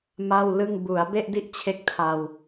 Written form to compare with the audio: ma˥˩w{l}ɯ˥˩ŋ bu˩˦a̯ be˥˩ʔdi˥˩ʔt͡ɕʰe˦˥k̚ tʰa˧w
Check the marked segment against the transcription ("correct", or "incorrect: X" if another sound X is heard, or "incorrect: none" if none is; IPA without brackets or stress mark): correct